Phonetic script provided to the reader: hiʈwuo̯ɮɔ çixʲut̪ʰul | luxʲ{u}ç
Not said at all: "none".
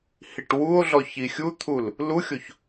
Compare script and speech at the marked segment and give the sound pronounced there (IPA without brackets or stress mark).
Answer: o